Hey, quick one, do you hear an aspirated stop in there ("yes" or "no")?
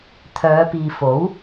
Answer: yes